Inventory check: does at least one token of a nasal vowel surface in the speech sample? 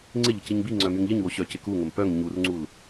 no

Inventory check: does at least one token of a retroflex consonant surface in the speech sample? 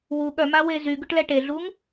yes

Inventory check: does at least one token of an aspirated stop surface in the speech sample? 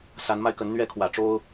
yes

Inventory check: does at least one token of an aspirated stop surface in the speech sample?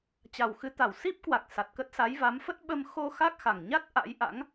no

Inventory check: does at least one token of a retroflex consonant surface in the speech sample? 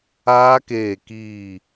no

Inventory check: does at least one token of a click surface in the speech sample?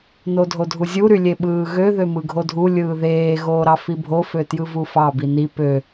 no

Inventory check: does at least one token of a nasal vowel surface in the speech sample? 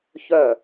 no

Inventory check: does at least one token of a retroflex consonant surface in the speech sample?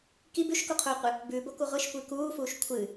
no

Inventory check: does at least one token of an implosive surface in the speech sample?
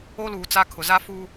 no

